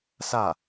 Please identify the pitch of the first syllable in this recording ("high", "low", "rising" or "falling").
falling